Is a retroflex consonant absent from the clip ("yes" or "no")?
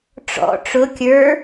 no